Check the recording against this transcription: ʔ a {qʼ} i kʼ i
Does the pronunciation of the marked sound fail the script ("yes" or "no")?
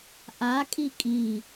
yes